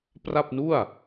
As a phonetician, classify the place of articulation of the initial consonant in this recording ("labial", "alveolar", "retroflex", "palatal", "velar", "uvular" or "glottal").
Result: labial